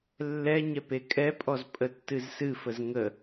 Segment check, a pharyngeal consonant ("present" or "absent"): absent